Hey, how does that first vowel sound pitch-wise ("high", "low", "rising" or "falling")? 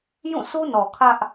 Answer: falling